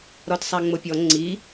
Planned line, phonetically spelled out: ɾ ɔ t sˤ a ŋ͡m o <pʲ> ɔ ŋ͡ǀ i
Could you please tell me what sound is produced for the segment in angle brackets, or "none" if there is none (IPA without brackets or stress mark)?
pʲ